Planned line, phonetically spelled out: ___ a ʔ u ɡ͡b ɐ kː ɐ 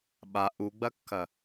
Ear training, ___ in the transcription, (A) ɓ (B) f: A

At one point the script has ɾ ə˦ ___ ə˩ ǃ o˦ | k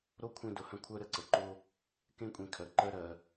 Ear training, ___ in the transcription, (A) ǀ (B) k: A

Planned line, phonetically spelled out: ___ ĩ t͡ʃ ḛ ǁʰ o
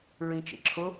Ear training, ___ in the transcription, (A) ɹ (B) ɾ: A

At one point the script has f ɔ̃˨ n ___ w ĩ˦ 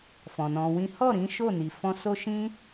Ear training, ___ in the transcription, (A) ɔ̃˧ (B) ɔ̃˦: A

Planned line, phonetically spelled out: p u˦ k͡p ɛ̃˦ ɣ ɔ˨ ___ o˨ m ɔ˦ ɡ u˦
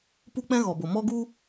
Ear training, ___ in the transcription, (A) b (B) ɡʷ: A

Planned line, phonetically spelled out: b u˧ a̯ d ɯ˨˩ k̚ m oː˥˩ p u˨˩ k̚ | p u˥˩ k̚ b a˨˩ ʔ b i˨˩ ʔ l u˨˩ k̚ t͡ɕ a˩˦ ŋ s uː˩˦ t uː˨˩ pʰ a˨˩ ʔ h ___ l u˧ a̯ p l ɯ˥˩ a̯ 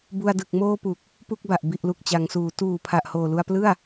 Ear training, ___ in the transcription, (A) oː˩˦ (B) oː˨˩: B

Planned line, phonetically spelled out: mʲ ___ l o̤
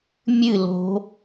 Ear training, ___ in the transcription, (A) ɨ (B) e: A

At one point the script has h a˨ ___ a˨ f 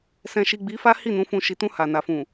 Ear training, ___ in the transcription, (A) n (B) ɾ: A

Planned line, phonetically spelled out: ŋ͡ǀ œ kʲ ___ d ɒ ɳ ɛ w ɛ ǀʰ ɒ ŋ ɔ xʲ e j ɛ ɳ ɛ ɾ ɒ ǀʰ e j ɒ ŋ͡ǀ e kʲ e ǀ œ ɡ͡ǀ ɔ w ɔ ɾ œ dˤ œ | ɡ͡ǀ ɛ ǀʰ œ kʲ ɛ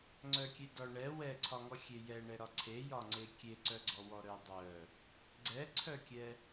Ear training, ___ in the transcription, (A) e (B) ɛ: A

